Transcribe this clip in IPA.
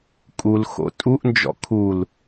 kʼ u l x o̰ tʼ u ʔ n d͡ʒ ɔ̰ kʰ u l

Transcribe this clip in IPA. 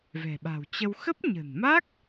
v ɛ̤˨˩ ɓ a̤˨˩ w t͡ɕ ə˧ w x ə˦˥ p̚ ɲ ə̤˨˩ n m a˦˥ k̚

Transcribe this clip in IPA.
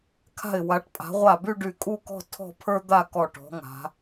kʰ a̤˧˩ ɪ̯ w a˩˧ ʈ pʼ a̤˩˧ ʁʷ a˧˩ b y˥˧ ɖ y˧˩ kʼ u˥˧ k ɔ̤˥˧ tʰ ɔ̤˥˧ pʰ ə˞˥ d̪ a˥˧ k ɔ˧˩ ʈ ɔ̤˩˧ ŋ a̤˩˧

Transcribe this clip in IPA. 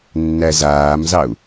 nː æ z aː m z ɑ u̯

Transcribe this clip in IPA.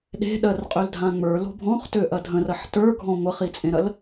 ɗ e̤ ɗ ɜ r qʼ ø l dʱ ã ŋ͡m ə˞ l o̤ bʱ ɔ̃ χ t ø ʔ ɐ dʱ ə̃ r ɐ ħ t ə˞ ɡʱ ɔ̃ ŋʷ ɐ χ i t͡sʼ ẽ ɾ ɐ l

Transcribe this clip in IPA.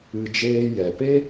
ɨ˧ d͡ʒ eː˦ j ɛ˨ p e˦

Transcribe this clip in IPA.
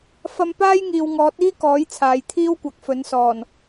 f ɐ˧ m p aː˥ j ŋ iː˨ w ŋ ɔː˨˥ t̚ iː˥ k ɔː˨˥ j t͡sʰ aː˨ j t̪ʰ iː˥ w kʷ ɐ˨˥ k̚ f ɵ˨˥ n s ɔː˨˩ n

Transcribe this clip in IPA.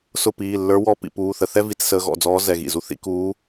s ʊ˦˨ p iː˩˧˩ lː ə˞˧˥ w ɔ˧˥ p ḭ˩˧ p uː˩˧˩ θ ə˧˩˧ θ ɛ˥ v i˧˩˧ t͡s s əː˧˥ ɣ ɔ̰˩˧˩ d͡z ɔː˧˥ z ɛ˩˧˩ ɣ ḭ˩˧˩ z u˥ θ ḭ˧˥ k uː˧˥

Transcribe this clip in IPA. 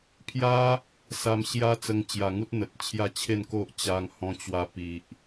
pʰ j a˦ | s a˧ m ɕ j a˦ t͡s ə˧ ŋ t͡ɕ j a˨˩ ŋ u˦ t̚ n̪ ə˨ t̚ t͡ɕʰ j a˥˧ t͡ɕʰ e˥˧ n k o˦ ʔ t͡ɕ a˧ ŋ h ɔ̃˧ t͡ɕ w a˧ p i˨ ʔ

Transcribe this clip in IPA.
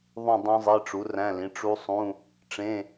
ðˤ ũ˦˨ dˤ õ˦˥ zˤ e˧˥˧ ʈ͡ʂ u˩˥ r æ̃˧˥˧ l ĩ˩˥ ʈ͡ʂ u˦˥ sˤ ũ˧˥˧ | ʈ͡ʂ ẽ˧˥˧

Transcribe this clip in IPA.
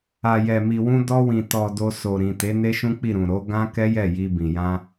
a˨ j ɛ˨ m i˨ w ũ˧ d ɔ˧ w ĩ˨ t ɔ˨ d o˧ s o˨ ɾ ĩ˨ t e˨˦ n e˦ ʃ ũ˦ k͡p i˦˨ ɾ ũ˨ ɾ o˨˦ ɡ ã˦ k ɛ˦ j ɛ˦˨ j i˧ b ĩ˨ j ã˧

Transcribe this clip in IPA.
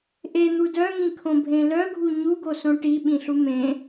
ʔ e n̪ u d œ ŋ ĩ kʰ õ bʱ ẽ l œ ɡʱ u ɲ u ɡ o s õ ʈ i ɓ ĩ ɬ u m ẽ

